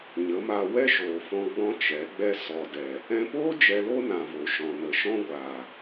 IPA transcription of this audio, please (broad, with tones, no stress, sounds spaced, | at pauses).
ɲ ə˨˦ m a˧ w ɛ˦ ʃ oː˨ f ɔ̃˧ ɡ͡b ɔ̃˦ t͡ʃ ɛ˨˦ ɡ͡b ɛ˦ s ɔ˨ d ɛ˨ | ɛ̃˧ p oː˦ d͡ʒ ɛ˧ l o˦ n ã˨ v o˨ ʃ ɔ̃˧ n ə˧ ʃ ɔ̃˦ ɡʷ aː˨